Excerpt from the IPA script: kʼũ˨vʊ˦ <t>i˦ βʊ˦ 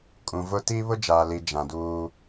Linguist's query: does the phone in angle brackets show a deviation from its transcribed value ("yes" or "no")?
no